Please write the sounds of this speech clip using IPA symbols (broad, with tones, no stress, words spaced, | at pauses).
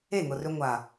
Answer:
e˦˨ŋʊ˨rʏ˧ ŋʷa˨